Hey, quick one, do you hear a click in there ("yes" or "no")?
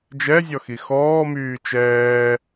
no